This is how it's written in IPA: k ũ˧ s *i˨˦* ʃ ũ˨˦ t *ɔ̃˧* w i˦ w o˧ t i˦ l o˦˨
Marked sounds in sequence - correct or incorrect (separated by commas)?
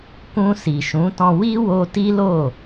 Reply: incorrect, correct